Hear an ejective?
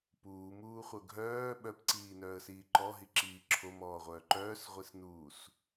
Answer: no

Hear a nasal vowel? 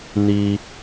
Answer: no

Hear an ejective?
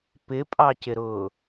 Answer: yes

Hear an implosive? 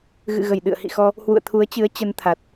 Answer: yes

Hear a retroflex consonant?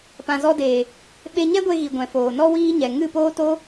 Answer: no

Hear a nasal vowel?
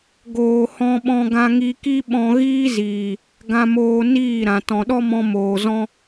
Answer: yes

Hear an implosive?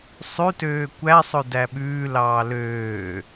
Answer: yes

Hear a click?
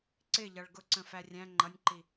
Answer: yes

